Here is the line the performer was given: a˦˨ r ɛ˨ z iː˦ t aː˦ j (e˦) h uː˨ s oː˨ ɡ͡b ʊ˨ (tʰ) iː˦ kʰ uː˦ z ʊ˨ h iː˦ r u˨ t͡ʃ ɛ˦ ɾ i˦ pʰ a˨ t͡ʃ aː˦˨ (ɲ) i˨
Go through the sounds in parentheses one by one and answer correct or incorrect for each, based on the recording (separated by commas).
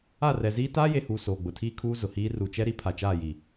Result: incorrect, correct, incorrect